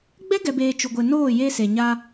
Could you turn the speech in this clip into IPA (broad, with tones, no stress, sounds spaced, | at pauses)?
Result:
ɡ͡b ɛ˦ ɡ ɛ˨ b eː˨ t͡ʃ u˨ ɡʷ e˨ n oː˦˨ j e˦ s e˨ ɲ a˦